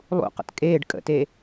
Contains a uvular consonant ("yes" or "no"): yes